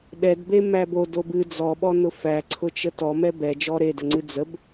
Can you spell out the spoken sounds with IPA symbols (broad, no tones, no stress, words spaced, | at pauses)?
ɗɛdbe mæbo dobɨ d͡zɔɓɔ nʊfæǀʰʊt͡ʃə tɔmɛ bɛ d͡ʒɔɾedəŋ͡ǀɨ d͡zəb